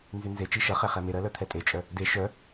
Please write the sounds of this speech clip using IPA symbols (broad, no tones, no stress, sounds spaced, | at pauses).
n z y n z e t͡ʃ i ʃ ʌ χ ɛ χ ɛ m e ɾ ɜ l œ t̪ʰ ɛ tʼ e t͡ʃʼ œ | d e ʃ œ